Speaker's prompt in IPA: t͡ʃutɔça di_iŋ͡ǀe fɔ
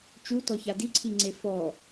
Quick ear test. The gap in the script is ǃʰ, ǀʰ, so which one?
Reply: ǀʰ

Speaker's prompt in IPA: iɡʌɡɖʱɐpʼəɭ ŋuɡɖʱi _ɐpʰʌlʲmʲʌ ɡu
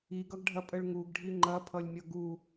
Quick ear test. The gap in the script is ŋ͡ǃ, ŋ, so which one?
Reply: ŋ͡ǃ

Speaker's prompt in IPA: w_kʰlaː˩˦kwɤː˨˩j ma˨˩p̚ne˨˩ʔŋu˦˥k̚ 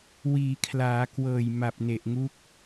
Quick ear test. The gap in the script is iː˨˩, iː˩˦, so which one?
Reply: iː˩˦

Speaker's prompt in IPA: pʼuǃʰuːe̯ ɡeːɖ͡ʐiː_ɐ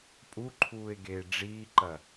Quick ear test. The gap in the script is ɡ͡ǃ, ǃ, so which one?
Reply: ǃ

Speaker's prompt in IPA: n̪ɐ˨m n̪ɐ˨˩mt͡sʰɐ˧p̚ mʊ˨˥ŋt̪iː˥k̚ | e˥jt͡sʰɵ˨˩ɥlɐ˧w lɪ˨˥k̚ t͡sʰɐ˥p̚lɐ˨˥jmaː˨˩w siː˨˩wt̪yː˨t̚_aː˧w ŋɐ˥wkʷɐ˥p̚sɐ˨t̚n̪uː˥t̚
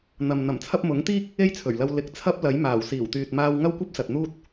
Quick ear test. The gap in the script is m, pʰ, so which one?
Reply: m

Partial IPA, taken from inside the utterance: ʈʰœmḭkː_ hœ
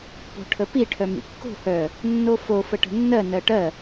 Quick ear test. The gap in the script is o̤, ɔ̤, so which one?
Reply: o̤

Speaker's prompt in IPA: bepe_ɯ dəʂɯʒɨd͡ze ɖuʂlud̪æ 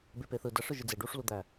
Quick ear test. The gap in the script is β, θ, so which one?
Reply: θ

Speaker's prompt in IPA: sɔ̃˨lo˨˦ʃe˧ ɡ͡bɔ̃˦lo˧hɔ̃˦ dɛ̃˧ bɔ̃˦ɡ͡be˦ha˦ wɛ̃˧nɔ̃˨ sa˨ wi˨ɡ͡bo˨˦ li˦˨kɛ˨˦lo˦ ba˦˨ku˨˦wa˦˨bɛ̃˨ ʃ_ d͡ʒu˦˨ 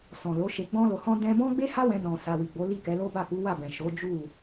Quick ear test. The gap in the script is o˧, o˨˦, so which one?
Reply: o˨˦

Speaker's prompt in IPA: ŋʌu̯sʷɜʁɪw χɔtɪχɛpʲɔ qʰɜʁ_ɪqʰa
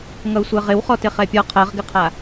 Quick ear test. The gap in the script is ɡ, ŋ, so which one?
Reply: ɡ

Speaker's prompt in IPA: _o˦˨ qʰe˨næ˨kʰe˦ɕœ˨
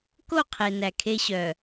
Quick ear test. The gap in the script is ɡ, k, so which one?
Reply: k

